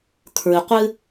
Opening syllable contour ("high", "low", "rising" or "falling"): low